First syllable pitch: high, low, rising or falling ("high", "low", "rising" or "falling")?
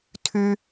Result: high